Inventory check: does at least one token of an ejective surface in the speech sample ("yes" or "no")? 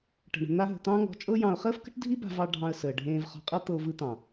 yes